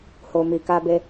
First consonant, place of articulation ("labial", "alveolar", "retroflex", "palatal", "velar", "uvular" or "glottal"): glottal